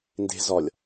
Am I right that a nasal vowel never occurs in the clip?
yes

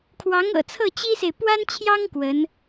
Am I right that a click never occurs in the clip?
yes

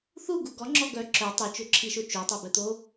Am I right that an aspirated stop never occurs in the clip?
no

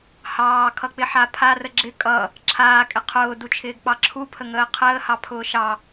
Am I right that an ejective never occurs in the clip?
no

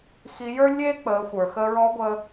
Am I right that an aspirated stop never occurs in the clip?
yes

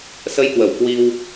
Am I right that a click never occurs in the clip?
yes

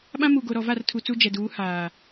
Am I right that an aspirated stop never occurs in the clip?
no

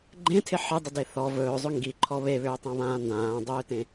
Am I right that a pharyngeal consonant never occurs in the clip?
no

